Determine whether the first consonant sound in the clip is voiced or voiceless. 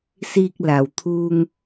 voiceless